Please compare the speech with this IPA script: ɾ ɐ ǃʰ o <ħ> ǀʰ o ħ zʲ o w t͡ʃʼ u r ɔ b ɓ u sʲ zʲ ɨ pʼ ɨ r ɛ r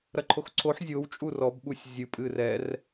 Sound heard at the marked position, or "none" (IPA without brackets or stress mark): x